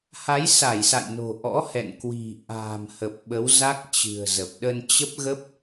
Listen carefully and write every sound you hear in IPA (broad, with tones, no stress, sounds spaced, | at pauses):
h a˨˦ j s a˧˩ j s a̰˧˨ j n o̤˨˩ ʔ ɔ̰˧˥ h ɛ̰˧˨ n k w i̤˨˩ ʔ a̤ː˨˩ m h ə˨˩ p̚ ɓ ə˨˦ w z a˦˥ k̚ t͡ɕ ɨ̤˨˩ ə̯ z ə˨˩ p̚ ɗ ə˧ n t͡ɕ ə˦˥ p̚ ɣ ə˦˥ p̚